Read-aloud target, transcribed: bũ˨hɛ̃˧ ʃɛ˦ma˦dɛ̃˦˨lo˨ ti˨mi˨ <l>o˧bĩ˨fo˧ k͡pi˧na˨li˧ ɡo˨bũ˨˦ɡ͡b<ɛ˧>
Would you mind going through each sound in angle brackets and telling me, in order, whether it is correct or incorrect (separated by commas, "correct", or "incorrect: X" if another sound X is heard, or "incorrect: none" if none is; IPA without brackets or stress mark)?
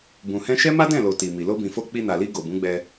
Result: correct, correct